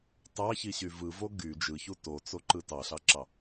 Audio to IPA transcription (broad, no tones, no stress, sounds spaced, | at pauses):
t ɑ ç i ɕ y v ɯ v o ɡ y d͡ʒ ɯ ç u t o t͡s o ǃ ɯ t ɑ ɬ ɑ ǁ ɑ